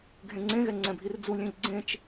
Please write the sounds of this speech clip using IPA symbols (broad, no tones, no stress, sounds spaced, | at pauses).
ɡʱ ẽ ŋ͡ǀ ẽ ɣ ɛ ŋ͡ǀ ɛ̃ bʱ i r d͡z u lʲ ẽ ʎ ɡ͡ǀ ẽ t͡ʃ